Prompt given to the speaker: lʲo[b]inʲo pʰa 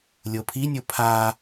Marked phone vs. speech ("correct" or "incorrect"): incorrect